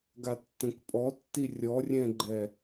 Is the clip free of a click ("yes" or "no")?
no